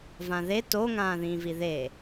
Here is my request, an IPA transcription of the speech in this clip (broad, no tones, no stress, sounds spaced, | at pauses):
v ã ð e t o ŋ ãː ð ĩː v i ð e